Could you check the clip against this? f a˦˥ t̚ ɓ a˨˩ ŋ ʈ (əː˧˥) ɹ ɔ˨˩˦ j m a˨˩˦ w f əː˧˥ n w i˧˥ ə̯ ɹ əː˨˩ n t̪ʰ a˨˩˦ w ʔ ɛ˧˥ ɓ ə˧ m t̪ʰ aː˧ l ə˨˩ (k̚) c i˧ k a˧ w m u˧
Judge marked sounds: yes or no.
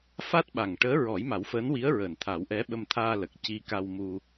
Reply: yes, yes

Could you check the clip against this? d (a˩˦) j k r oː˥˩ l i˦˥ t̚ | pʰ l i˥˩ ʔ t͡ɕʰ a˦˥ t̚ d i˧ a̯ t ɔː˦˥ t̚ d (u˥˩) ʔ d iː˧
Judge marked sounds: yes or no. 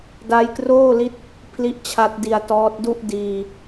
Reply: no, yes

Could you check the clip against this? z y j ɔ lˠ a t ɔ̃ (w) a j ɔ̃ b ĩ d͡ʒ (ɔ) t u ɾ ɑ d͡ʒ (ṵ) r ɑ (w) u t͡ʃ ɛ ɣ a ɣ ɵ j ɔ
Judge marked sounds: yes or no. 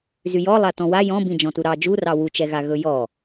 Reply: yes, no, no, yes

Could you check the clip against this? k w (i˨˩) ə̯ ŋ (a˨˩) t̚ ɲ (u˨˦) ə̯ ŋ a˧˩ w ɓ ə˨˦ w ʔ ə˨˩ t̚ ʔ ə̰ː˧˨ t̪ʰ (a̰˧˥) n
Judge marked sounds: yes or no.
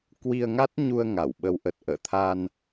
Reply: no, no, no, no

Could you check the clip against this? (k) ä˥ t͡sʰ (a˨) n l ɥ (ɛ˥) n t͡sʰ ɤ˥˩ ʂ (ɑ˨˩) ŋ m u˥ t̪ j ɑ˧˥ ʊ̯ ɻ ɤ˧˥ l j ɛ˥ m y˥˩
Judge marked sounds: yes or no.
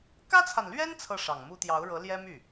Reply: yes, yes, yes, yes

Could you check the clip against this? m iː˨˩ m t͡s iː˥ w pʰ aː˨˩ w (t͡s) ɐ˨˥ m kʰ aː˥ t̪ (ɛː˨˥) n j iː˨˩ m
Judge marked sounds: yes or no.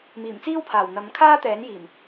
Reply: no, yes

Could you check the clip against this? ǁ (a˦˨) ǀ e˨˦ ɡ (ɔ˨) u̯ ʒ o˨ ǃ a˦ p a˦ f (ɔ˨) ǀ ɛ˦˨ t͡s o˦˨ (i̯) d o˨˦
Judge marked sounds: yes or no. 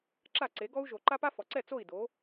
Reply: yes, no, yes, yes

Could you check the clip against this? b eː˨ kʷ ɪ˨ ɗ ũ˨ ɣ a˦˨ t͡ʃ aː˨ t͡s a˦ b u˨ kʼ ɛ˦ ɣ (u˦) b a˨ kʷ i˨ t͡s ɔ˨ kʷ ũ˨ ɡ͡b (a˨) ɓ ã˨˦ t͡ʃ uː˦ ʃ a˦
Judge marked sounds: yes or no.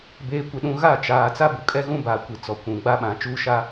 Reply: no, no

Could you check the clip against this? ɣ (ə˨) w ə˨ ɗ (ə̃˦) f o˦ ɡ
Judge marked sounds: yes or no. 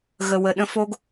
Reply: yes, yes

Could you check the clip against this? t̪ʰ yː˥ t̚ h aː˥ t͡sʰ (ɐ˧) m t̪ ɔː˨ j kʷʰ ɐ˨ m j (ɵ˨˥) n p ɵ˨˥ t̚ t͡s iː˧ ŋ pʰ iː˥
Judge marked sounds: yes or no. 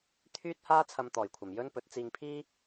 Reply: yes, no

